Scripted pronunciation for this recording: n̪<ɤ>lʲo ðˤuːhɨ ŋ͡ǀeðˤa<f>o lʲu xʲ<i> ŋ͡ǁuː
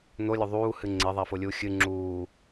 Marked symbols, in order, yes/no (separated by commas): no, yes, no